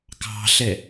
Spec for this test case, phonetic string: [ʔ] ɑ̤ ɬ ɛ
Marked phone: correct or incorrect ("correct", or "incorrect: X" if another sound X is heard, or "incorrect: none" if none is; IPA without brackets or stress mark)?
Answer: incorrect: k